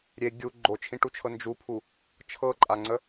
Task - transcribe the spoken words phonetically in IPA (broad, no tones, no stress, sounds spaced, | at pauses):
ɾʲ e ɡʲ u ɡ͡ǃ o t͡ʃʰ ĩ ʈ u t͡ʃʰ ɤ n d͡ʒ u pʰ u | t͡ʃʰ ɤ ǃʼ a ŋ͡ǀ ə